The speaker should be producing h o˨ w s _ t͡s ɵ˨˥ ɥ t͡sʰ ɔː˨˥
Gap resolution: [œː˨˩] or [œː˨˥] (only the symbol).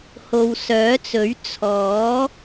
œː˨˥